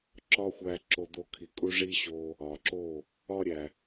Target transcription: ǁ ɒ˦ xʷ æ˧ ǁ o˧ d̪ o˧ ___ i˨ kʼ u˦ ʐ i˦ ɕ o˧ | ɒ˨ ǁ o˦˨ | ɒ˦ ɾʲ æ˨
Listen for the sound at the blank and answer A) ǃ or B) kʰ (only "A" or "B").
B